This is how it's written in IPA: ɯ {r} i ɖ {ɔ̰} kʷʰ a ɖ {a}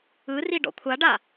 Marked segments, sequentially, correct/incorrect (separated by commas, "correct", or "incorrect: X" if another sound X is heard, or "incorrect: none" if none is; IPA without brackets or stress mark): correct, correct, correct